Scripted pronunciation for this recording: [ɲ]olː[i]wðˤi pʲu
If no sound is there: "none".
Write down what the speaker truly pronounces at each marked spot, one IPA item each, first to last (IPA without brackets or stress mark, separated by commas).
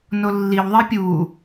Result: n, i